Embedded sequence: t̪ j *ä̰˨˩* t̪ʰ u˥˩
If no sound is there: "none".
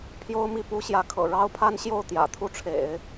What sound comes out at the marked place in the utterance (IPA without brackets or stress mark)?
ä̰˨˩